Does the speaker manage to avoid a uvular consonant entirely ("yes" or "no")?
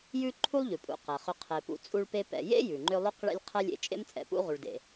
no